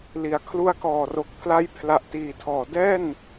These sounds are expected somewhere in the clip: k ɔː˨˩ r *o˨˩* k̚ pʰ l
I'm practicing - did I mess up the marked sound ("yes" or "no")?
no